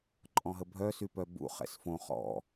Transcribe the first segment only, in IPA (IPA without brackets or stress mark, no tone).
ǃʼ